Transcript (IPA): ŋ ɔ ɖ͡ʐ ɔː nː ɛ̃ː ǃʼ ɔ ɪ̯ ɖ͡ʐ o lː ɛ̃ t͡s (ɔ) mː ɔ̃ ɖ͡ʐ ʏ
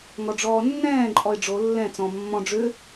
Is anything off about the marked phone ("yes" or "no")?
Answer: yes